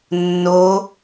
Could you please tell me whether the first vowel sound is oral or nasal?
oral